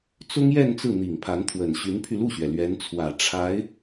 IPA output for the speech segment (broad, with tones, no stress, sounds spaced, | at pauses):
t͡s ʊ˥ ŋ j ɛ˥˧ n t͡s ɹ̩˥˩ n̪ i˨˩ ŋ pʰ a˧˥ n t̪ʰ w ə˨˩ n ɕ y˧˥ n pʰ y˧ l u˥˩ ɕ ɥ ɛ˩ l ɥ ɛ˧˥ n t͡sʰ w ä˨˩ ʈ͡ʂʰ a˧˥ ɪ̯